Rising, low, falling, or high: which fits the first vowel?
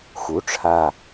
rising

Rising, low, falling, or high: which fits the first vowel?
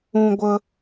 high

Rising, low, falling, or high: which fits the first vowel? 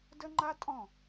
high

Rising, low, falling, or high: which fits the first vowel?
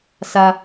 high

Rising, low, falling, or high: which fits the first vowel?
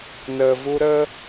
low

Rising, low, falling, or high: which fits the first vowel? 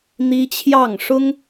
high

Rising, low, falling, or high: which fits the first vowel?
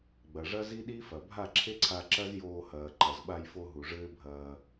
low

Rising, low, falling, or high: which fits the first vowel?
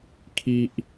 low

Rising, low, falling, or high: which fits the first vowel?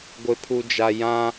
low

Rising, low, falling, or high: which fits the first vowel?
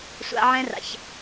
high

